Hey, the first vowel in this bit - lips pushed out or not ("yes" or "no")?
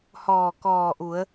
yes